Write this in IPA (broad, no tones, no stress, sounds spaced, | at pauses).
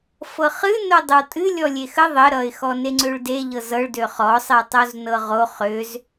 f ɤ χ ɨ n o dˤ ə w tʼ ɨ lʲ ɔ lʲ e x ə ðˤ ə ɾ ʌ ɪ̯ x ɔ n e ŋ͡ǀ ø ɭ d e ʎ ɤ z ɤ ɭ d ø χ ɔ sˤ e tˤ o z n ɤ ʁ o χ ø z